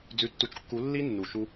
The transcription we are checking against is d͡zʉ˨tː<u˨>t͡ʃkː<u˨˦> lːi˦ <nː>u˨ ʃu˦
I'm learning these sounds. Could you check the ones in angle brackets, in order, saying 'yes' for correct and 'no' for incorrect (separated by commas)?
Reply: yes, yes, yes